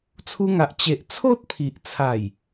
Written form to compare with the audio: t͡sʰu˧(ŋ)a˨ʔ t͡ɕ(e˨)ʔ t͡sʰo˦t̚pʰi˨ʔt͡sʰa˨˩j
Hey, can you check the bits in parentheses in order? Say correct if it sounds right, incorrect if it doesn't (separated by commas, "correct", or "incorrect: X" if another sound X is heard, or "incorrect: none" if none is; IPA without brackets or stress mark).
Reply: correct, correct